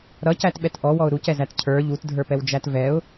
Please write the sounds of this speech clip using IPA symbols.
ɾ ʌ c æ t ɓ ɛ t ʔ ɔ w ɔ ʊ̯ ɾ u c ɛ z æ t cʰ ə˞ ʎ u t dʱ ə˞ p ɛ w d͡ʒ æ t v ɛ ʊ̯

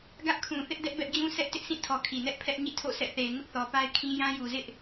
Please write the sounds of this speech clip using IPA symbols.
ɡ ä˦ ʔ kʰ ũ˨ θ ɪ˦ ʔ d ɛ˦ ʔ b ɛ˦ ʔ d͡ʑ ũ˦ s ɛ˦ ʔ t ɪ˦ ʔ sʰ ĩ˦˨ tʰ ɔ˨ kʰ i˨ n ɛ˦ ʔ pʰ ɛ˦ ʔ ɲ ḭ˦˨ tʰ o̰˦˨ sʰ ɛ̰˦˨ θ e˨ ɪ̯ ŋ ʊ˦ ʔ θ ɔ˨ p a˦ ɪ̯ kʰ ĩ˦ j ã˦ j u˨ z ɪ˦ ʔ

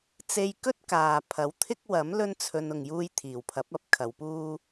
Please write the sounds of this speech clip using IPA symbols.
t͡s e˧ j k ɵ˥ t̚ k aː˨ pʰ ɐ˨˥ w t̪ʰ ɪ˥ k̚ w ɐ˨˥ m l ɵ˥ n t͡sʰ ɵ˧ n ʊ˨ ŋ j uː˧ j t̪ʰ iː˨˩ w pʰ ɐ˨˥ p̚ ɐ˨˥ p̚ kʰ ɐ˨˧ w p uː˥

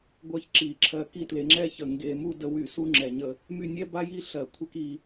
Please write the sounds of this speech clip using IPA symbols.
ɡʷ ɜ˥˧ ç ǁ i˧˩˧ ǁʰ ɜ˧ k i˥˧ t l e˧ ŋ͡ǁ ɛ˥ ç ə˧˩˧ ŋ ɡ e˧ m u˥˧ d ə˧ w y˧˩˧ s u˥ ŋ͡ǁ ɛ˧˩˧ ɲ ə˧ | m y˥˧ nʲ ɛ˥ b a˥ j i˥˧ ɬ ɜ˧˩˧ kʷʰ ɛ˥ k i˧

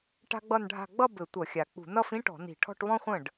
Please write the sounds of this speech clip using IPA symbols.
ʈ a̤˥ ɡ͡b ʌ˥˧ n ɖʱ a̤˥˧ ɡ͡b ʌ˥˧ b ɘ˧˩˧ tʷ ʌ˧˩˧ xʲ a˨˩ k͡p ṳ˧˩˧ n ʌ˥˧ f ĩ˥ ʈ ɔ̤˧˩˧ n i̤˧˩˧ ʈʰ ɔ̤˥˧ ʈ β ɔ̃˥ χʷ ə̃˥˩ ɖ

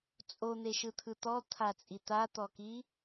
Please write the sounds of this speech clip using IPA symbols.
t͡sʼ o n̪ e ʃ ɯ t̪ʰ ɯ t̪ ɔ t̪ʰ a t͡sʼ i t̪ a t̪ ɔ k i

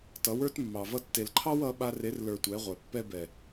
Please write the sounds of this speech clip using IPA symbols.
t ʌ˨˦ w ə˞˦ t mː ɑ˨ v ʌ˧ tː e˨ l ǃʰ ɑ˦ w ʌ˨˦ ɓ a˧ r e˨˦ r l ə˞˨ tʷ ɛ˨˦ ʁʷ ɛ˨ pː ɛ˦ b ɛ˨

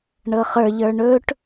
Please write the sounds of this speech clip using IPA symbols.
ɳ ɤ χ ə˞ ʎ ə˞ ɳ ɵ ʈ

